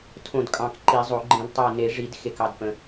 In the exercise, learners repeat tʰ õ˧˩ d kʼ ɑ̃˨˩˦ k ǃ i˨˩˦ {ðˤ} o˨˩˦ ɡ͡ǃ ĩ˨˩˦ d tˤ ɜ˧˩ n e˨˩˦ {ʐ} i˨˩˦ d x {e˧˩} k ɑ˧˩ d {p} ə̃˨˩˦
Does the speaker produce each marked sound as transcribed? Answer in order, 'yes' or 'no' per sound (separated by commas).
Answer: no, yes, yes, yes